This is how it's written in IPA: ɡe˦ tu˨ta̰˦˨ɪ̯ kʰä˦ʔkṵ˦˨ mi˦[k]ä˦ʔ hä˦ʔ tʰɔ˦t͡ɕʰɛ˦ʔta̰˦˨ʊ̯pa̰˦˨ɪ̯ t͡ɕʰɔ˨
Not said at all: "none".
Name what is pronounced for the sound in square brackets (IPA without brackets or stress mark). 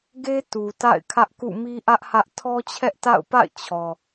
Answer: ʔ